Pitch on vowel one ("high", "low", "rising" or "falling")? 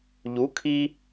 rising